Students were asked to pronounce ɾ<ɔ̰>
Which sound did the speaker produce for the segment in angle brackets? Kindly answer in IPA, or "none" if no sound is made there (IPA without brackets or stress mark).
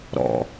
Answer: ɔ̰